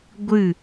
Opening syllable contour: falling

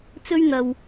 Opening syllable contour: high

